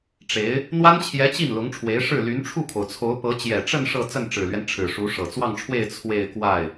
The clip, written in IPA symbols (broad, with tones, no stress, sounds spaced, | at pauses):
ʈ͡ʂ e˧˥ ɪ̯ | n̪ w a˥ n t͡ɕʰ j ɛ˧˥ t͡ɕ i˥˩ n l ʊ˧˥ ŋ ʈ͡ʂʰ w e˧˥ ɪ̯ ʂ ɻ̩˥˩ l y˧˥ n ʈ͡ʂʰ u˥˩ kʰ o˩ ʊ̯ t͡sʰ o˧˥ ʊ̯ p ɤ˧˥ t͡ɕ j ɛ˨˩ ʈ͡ʂ ə˥˧ n ʂ ɤ˥˧ t͡s ə˥˩ n ʈ͡ʂ ɻ̩˨˩ l ɥ ɛ˦ n ʈ͡ʂʰ ɻ̩˨˩ ʂ u˧˥ ʂ ɤ˨˩ t͡s w ɑ˥˧ ŋ ʈ͡ʂʰ w e˥˧ ɪ̯ t͡sʰ w e˥˧ ɪ̯ k w a˥˩ ɪ̯